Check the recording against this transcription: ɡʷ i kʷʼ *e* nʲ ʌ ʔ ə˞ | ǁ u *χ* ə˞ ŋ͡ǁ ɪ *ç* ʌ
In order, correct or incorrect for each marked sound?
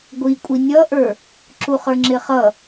incorrect: i, correct, incorrect: χ

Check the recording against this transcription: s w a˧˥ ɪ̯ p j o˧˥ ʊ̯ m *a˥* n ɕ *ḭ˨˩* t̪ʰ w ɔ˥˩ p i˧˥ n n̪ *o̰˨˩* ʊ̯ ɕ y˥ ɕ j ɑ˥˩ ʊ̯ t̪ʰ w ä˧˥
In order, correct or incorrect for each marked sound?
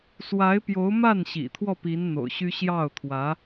incorrect: a˥˩, correct, correct

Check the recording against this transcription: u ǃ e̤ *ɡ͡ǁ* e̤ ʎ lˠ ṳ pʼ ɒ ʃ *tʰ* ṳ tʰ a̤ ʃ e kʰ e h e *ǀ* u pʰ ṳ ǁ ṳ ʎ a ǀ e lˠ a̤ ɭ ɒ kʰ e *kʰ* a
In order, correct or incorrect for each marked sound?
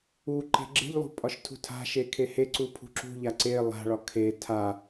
correct, correct, correct, incorrect: tʰ

